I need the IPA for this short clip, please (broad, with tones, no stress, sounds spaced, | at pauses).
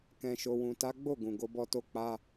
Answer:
k ɛ̃˨ ʃ o˨ w ũ˨ t a˨˦ ɡ͡b o˦˨ ɡ ũ˨ ɡ o˧ b ɔ˧ t o˧ k͡p a˧